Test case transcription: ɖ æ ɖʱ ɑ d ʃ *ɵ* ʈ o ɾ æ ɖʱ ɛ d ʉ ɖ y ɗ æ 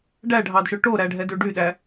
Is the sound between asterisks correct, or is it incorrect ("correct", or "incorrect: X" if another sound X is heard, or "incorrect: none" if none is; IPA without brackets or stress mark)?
correct